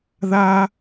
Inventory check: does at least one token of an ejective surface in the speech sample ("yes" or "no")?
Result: no